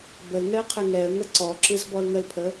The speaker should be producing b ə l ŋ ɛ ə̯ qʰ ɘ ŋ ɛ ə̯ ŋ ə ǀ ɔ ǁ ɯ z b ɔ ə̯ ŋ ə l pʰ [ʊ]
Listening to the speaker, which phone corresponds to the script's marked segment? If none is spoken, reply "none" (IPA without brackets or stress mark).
ə